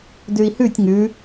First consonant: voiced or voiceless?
voiced